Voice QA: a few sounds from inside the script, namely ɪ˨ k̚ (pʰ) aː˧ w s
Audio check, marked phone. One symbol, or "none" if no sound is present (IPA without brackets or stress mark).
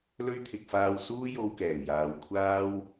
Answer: f